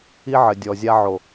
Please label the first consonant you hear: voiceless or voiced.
voiced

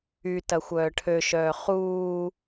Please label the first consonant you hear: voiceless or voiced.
voiceless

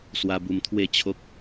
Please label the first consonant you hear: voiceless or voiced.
voiceless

